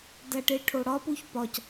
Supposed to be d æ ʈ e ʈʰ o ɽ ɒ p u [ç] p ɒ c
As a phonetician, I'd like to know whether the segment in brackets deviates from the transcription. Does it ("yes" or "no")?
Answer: no